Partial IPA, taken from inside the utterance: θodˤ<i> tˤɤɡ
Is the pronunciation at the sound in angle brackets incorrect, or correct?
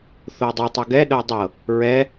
correct